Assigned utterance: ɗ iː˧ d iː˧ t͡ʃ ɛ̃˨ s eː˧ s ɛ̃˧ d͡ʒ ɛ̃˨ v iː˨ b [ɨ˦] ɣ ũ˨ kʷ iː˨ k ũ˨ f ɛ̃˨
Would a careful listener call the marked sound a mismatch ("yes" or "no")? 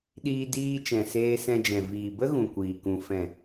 yes